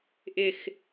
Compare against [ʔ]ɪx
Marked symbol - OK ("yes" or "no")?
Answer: yes